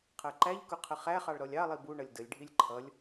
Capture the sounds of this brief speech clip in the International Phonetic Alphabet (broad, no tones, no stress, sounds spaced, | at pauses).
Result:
qʰ ɜ ǃ æ ʎ k ʊ qʰ ə χ æ χ ɑ ɭ ɾ ɔ lʲ ɑ lˠ i b u ɳ ʌ lʲ d ə lʲ ɖʱ i lʲ ǃʰ ʌ lʲ